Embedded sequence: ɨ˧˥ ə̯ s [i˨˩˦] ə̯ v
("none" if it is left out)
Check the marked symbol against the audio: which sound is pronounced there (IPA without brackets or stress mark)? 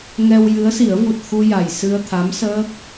i˨˩˦